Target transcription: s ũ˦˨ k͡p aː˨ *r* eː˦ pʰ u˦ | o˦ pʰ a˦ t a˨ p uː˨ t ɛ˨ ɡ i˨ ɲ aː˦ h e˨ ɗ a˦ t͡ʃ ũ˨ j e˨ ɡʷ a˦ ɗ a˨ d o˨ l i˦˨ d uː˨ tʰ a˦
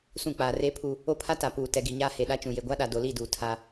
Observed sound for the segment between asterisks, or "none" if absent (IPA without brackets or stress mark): r